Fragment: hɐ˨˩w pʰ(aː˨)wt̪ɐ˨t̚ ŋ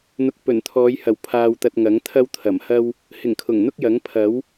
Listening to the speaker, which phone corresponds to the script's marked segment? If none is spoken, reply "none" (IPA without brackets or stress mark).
aː˨